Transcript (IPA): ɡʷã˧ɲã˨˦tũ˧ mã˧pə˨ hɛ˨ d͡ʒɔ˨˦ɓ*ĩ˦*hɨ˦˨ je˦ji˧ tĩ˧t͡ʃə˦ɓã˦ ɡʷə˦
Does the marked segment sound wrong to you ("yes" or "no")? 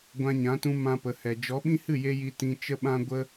no